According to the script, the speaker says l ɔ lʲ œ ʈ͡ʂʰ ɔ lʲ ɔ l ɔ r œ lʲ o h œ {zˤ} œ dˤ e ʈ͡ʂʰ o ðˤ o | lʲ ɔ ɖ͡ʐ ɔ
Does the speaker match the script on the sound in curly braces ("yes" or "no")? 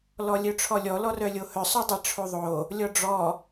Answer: no